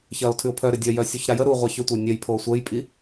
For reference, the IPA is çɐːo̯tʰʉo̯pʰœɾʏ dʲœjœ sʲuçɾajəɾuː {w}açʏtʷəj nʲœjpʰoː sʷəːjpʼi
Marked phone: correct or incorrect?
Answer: incorrect